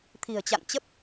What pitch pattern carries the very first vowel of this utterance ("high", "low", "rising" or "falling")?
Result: low